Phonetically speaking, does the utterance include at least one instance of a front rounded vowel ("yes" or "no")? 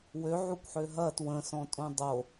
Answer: yes